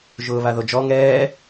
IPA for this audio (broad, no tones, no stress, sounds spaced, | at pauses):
ʒ ʊː β a ð o d͡ʒ ɔ ŋ ɛː